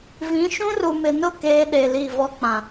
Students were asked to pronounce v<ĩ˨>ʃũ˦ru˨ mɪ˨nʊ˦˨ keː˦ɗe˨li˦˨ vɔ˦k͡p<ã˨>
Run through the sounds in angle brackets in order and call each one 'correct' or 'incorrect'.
incorrect: ĩ˨˦, correct

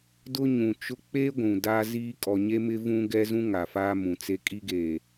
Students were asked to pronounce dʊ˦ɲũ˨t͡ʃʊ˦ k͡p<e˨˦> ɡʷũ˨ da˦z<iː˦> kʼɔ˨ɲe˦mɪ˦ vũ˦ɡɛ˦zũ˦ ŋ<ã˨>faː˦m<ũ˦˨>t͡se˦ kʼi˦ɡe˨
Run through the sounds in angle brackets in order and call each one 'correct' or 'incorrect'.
incorrect: e˦, correct, incorrect: a˨, incorrect: ũ˨

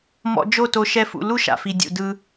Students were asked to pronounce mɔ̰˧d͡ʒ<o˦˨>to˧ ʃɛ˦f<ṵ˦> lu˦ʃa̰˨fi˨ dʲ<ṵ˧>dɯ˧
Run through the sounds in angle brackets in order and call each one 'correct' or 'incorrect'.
correct, incorrect: ṵ˧, incorrect: ṵ˨

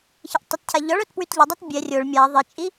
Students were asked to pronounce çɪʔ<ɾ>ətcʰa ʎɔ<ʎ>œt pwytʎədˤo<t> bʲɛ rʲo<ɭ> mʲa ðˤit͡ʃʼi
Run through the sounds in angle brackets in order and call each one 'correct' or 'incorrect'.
incorrect: tˤ, incorrect: ɭ, correct, correct

